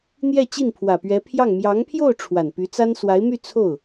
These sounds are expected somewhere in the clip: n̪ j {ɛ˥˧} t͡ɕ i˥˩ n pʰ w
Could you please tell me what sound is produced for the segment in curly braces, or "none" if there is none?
ɛ˥˧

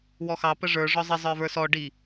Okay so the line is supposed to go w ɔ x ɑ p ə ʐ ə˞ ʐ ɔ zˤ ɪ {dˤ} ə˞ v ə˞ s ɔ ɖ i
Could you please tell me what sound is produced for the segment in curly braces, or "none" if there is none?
zˤ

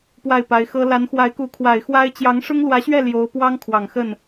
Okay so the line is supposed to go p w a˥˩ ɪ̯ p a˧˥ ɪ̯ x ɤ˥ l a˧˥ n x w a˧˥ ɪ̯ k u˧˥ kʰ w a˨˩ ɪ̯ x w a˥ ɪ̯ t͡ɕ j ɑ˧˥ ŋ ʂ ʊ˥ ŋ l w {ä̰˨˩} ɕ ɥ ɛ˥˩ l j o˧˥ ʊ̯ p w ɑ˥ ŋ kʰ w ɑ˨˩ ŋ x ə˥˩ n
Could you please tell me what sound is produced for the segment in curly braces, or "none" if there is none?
ä˧˥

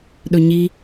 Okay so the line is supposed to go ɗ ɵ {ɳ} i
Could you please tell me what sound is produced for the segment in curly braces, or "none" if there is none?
ɲ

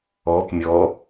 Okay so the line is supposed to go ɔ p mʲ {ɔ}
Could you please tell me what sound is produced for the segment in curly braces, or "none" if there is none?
ɔ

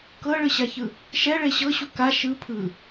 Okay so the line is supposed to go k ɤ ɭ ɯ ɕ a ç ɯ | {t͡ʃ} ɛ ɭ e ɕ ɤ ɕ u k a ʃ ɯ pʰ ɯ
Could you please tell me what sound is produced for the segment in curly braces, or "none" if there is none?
ʃ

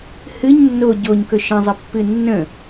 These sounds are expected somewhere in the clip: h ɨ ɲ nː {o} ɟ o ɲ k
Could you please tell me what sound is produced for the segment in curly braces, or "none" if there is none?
o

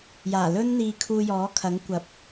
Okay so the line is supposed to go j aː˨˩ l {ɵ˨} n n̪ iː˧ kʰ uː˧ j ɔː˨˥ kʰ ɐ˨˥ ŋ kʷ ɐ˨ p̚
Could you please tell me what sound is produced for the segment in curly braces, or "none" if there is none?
ɵ˥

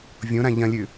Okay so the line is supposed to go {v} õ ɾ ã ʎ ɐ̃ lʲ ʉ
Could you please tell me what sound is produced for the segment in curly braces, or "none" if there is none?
vʲ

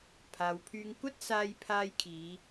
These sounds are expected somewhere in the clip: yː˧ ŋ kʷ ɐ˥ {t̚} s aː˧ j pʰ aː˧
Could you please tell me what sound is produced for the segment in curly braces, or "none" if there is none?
t̚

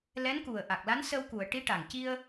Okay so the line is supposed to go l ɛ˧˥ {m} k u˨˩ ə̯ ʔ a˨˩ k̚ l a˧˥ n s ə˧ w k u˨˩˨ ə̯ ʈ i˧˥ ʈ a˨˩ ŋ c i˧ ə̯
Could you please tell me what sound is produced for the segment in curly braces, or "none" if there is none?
n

